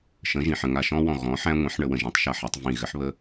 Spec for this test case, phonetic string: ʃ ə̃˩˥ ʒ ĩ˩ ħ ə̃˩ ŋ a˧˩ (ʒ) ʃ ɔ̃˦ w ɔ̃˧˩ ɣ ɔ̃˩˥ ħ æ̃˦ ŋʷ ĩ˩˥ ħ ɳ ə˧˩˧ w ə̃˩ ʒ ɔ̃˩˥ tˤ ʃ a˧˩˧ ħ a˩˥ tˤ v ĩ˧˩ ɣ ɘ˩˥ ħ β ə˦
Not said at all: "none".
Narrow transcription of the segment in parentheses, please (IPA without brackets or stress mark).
none